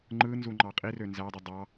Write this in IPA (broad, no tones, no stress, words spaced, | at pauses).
ŋ͡ǃɯnzuŋ͡ǃɑ qʼirø nzædˤi dˤɑ